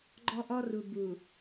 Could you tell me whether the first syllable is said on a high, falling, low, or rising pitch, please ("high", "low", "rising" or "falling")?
high